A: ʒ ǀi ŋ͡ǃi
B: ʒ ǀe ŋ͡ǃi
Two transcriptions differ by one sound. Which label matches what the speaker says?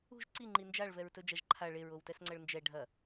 A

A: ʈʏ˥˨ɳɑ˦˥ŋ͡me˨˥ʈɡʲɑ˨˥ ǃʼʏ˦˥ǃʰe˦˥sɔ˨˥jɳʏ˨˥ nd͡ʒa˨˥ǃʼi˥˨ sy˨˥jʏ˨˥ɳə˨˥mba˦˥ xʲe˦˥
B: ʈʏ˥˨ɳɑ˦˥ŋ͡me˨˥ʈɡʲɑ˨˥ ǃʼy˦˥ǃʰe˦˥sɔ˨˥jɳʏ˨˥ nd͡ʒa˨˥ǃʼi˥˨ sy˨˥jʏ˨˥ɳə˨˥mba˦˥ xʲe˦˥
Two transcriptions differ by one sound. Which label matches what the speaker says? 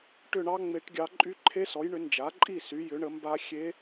B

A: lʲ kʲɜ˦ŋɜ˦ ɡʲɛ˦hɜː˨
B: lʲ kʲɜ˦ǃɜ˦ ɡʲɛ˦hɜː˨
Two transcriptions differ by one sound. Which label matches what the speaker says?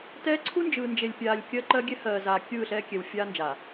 B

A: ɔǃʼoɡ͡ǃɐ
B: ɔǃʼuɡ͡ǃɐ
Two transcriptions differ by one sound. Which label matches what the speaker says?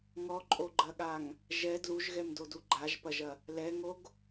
A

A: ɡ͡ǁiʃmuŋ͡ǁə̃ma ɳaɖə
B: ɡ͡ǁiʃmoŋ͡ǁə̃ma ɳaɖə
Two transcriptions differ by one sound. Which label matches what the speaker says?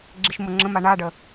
B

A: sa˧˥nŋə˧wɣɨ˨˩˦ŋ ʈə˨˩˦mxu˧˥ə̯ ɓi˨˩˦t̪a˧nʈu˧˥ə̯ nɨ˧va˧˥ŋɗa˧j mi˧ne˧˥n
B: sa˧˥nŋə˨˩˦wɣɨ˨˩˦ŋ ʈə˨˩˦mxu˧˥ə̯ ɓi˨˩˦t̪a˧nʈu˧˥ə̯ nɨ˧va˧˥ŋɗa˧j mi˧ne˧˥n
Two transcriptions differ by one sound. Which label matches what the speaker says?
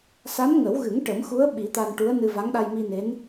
B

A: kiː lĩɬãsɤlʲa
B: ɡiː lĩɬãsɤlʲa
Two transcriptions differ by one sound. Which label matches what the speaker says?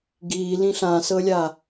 B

